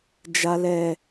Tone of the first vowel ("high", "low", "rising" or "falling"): low